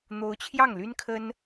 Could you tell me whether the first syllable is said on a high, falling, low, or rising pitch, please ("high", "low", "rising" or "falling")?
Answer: rising